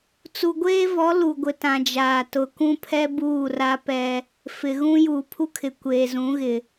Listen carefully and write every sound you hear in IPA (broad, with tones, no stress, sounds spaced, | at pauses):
t͡s u˨ ɡʷ eː˦ v ɔ˨˦ l u˨ ɡʷ ɪ˨ t ã˨ d͡ʒ aː˨ t ʊ˨ k ũ˦ pʰ ɛ˦ b uː˦˨ r a˦ p ɛ˦ | f ɪ˨ ɣ ũ˦ j uː˨ pʰ u˦ kʰ ɪ˨ kʷ eː˨ z ũ˨˦ ɣ ɪ˨